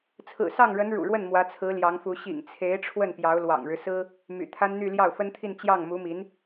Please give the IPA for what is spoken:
t͡sʰɹ̩˨˩sɑ˥˩ŋɻə˧˥n ɻṵ˨˩ɻwə˥˩n mwä˧˥t͡sʰɹ̩˧˥ljɑ˧˥ŋfu˧˥ ɕḭ˨˩ŋt͡sʰe˧˥ɪ̯ ʈ͡ʂʰwə˥˩npjɑ˧˥ʊ̯ lwɑ̰˨˩ŋɻɻ̩˦sɹ̩˥ | my̰˨˩t̪ʰa˥nn̪y˥˧ ljɑ˥˩ʊ̯fə˥nt̪ʰi˥˧n t͡ɕjɑ˥˩ŋmu˧˥mi˧˥n

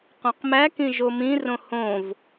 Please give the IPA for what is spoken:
qœ̃qmækĩ ʒomĩrõ hõv

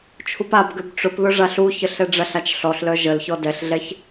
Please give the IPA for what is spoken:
t͡ʃʰupabɡøb ʈ͡ʂʊpðʊ ʐaɬuçəɬ ɛɖ͡ʐɐɬat͡ʃ ɬɔɬlœ ʒəlçɔ dɛɬɮɛç

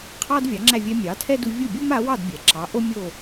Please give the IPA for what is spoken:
qʰɑ˥dvʲɑ˩˥ŋ͡ǁæ˥˩ vʲɛ˧ mʲɑ˩˥tʰɛ˥du˧ vʲu˥˩bʲu˥ma˩˥wɑ˥˩d bʲɛ˩ǁɑ˩˥ʔo˥ mʲo˥˩

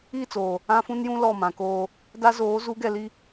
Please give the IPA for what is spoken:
i˦˨t͡soː˨ | ã˦fũ˦njũ˦ lɔ˦˨mã˨koː˦ | da˦zoː˨˦zu˨˦ɡɛ˨ li˦

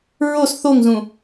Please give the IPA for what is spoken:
ɹos θoŋzũ

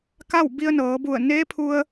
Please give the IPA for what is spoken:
ka˥˨wbi˧ə̯nɤː˩˧bu˧˩ə̯ neː˧˥pʰu˧ə̯

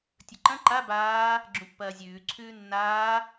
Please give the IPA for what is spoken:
tʲɵǃɐ̃ ǃa baː | ɡ͡ǁũpːɐːzʲʉː ǀʰʉːnːaː

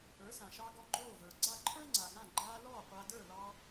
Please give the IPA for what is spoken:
ə˞˩˥sã˩ʃɑ˧ ɡɔ˧ ɡ͡ǃoː˥˩ və˞˩ɡ͡ǀa˥˩ǃʰə˞˥ ŋ͡ǀa˩ɡã˥˩ ɡ͡ǃaː˧ lɔː˥˩ qʷa˧ də˞˥˩lɑ˧

